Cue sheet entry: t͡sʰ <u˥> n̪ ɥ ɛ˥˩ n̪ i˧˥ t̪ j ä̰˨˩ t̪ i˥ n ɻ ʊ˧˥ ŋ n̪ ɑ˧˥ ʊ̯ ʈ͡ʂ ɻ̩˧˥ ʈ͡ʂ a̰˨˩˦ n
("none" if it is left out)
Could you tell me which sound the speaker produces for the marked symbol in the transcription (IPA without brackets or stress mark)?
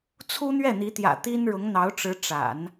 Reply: u˥